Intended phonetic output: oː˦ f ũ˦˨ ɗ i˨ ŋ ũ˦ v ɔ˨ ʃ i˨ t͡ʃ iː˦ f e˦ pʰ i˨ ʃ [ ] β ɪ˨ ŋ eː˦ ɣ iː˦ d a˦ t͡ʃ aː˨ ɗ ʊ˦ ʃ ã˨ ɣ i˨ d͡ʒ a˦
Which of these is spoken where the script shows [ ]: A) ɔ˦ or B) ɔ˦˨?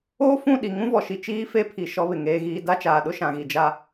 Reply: A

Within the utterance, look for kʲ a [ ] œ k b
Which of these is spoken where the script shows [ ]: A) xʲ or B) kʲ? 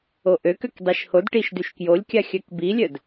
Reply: A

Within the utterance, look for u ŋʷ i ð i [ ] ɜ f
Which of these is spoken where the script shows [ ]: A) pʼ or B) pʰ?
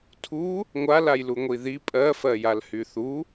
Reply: A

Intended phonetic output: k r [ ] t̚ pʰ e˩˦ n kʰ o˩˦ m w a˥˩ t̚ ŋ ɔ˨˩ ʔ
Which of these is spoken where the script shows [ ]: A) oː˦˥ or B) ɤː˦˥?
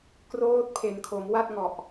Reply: A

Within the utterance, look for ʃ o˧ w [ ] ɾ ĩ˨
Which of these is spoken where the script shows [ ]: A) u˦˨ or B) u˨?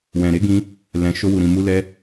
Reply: B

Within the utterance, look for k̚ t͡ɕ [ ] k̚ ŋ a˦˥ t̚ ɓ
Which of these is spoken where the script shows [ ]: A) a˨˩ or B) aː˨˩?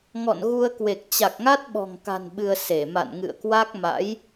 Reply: A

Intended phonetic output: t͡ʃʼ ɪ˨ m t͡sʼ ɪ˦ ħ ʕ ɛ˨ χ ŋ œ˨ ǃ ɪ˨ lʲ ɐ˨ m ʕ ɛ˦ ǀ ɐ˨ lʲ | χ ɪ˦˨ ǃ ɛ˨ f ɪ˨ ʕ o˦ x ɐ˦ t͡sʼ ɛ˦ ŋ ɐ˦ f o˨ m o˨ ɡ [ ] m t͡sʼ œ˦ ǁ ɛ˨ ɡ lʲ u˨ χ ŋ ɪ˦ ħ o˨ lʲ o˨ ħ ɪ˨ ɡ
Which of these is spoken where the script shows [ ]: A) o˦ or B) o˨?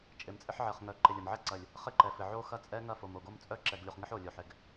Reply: A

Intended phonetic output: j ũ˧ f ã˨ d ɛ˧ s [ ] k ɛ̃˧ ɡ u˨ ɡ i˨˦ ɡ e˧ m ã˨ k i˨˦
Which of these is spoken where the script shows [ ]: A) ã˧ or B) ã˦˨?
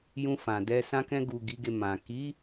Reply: A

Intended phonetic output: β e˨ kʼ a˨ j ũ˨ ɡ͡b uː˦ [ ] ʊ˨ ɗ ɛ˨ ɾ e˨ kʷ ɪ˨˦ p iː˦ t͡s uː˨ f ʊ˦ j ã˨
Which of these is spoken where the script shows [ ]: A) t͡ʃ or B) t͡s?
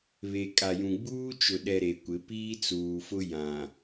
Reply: A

